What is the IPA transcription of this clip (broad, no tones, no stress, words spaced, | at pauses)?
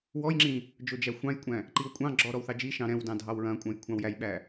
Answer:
wɔjŋ͡ǁĩ | d͡ʒod͡ʒæxʷɑ̃jkʷʼæ̃ | ǃiwkʷʼɑ̃ɡ͡ǁɔ ɾɔwθɑd͡ʒiʃɑ̃ ɾɛ̃wdɑ̃ dʱɑwɹɐ̃kʷʼɐ̃j kʷʰɑ̃wjæjɓæ